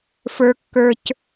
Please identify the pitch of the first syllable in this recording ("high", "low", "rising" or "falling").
low